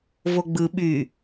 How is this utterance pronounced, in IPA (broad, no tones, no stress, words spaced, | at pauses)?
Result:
voɡ͡bɯ ɓy